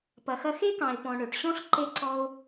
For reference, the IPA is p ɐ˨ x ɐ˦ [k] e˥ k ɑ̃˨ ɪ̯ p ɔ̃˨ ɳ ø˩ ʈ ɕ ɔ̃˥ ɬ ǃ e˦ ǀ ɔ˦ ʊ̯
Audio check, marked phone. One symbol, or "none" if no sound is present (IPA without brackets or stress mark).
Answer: x